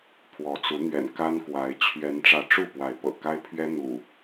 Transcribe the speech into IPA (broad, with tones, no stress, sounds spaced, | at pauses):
pʰ w ɔ˨˦ t͡s u˨˦ n̪ ɥ ɛ̰˨˩ n k a˦ n k w a˨˦ ɪ̯ t͡ɕʰ ɥ ɛ˨˦ n ʈ͡ʂ ä˨˦ ʈ͡ʂ u˥˨ p w a˨˦ ɪ̯ p ɤ̰˨˩ k a˦ ɪ̯ pʰ ɥ ɛ˦ n̪ ṵ˨˩